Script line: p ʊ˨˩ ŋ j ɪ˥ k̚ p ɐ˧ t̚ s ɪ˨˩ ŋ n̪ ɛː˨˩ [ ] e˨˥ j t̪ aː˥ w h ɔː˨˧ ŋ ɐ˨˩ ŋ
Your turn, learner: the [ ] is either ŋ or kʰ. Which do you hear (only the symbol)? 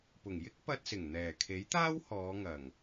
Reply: kʰ